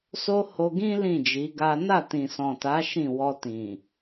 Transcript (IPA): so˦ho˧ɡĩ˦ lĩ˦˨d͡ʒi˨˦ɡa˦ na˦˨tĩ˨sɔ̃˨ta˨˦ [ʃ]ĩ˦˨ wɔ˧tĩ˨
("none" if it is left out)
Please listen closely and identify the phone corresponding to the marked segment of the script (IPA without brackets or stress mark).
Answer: ʃ